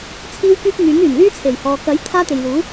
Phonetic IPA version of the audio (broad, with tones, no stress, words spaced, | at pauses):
t͡sʰiː˥wkyː˥p̚ŋyː˨˥ŋ yː˨˩nlyː˥t͡sʰe˨˩j hɔː˨ kɐ˨˥j t̪ʰaː˥t̪e˨jluː˨˥